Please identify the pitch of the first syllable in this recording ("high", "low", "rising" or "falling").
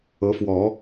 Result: rising